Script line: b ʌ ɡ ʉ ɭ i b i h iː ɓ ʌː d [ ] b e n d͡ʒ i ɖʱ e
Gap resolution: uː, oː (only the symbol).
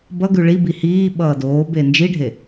oː